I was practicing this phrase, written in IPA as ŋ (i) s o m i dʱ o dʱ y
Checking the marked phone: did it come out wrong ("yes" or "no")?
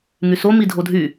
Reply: yes